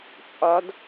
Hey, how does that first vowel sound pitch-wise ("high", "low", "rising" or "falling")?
rising